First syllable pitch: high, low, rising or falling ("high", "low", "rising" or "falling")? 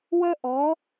high